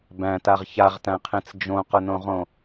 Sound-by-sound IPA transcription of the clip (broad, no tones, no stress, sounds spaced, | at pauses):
b æ̃ t a ʁ ç a ʁ t æ̃ qʰ ẽ t͡s d͡ʒ õ q ʊ n õ ʁ õ